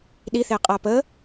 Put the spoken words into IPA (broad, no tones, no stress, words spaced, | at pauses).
ɗiθeqʼa pə